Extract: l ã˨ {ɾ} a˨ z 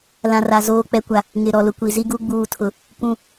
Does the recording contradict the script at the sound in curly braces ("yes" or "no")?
yes